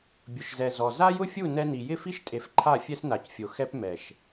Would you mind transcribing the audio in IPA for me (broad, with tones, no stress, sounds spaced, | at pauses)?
bʲ ʊ˨ ʃ z ɛ˨ z ɔ˨ z a˦ j ʊ˦ fʲ u˦˨ n ɛ˦ n i˨ j ɪ˦˨ f i˦ ʃ tʼ e˨ f ǃʰ a˦˨ fʲ ɛ˦ s n a˨ c fʲ o˨ x ɛ˦ p m ɛ˨ ʃ